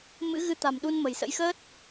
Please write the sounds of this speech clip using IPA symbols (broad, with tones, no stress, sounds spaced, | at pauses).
m ɨ̰˧˥ ɣ ɨ˨˦ t̪ a̤˨˩ m ɗ u˧ n m ə̤˨˩ j s ə̰˧˥ j x əː˦˥ t̚